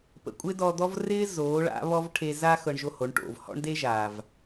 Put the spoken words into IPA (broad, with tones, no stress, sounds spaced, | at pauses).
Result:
p ə̰˨ kʷʼ ɪː˦ d ɔ˧ d̪ ɔ˦ v r ɪː˦ z oː˨˦ ɭ a̰˨˦ β ɔ˦ v ʈʰ e˧ z a˦ x ɤ˧ ɳ ʒ o˧ h o˨˦ ɳ ʈ o̰˦˨ v h ɔ̰˦ ɳ d e˦ ʒ aː˨ v